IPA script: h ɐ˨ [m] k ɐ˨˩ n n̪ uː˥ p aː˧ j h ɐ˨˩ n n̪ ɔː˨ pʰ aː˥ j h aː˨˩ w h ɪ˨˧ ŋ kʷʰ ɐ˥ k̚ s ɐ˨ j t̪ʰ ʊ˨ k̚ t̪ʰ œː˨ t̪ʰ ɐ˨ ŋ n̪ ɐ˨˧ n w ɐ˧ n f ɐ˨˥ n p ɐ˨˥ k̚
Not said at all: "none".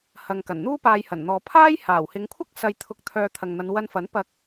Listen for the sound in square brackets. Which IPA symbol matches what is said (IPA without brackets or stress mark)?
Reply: ŋ